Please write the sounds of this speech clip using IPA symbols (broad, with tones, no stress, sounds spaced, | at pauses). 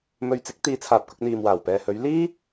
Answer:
m ɵ˧ ɥ t͡s ɪ˨˥ k̚ t̪ iː˨˧ t͡sʰ aː˨ p̚ k ʊ˧ k̚ n̪ iː˨ m w aː˨˩ w p ɛː˨ h ɵ˨˧ ɥ l iː˥